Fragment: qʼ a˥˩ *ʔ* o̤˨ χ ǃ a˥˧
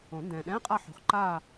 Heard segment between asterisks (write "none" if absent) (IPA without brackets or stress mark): ħ